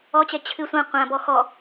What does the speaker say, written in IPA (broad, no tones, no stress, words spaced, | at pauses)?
ɔt͡ɕɛ t͡ɕʰɨ sʷã qʷãbɔ xɔ